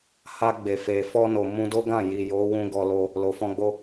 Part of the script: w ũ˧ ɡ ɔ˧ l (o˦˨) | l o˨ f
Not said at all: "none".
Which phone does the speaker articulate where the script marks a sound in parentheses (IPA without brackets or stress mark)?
o˧